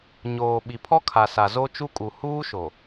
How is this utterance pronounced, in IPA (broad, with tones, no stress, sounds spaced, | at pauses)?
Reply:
ɲ oː˨ ɓ i˨ pʰ ɔ˦ kʰ a˨ s a˨ z o˦ t͡ʃ u˦ kʼ u˨ h uː˦ ʃ o˨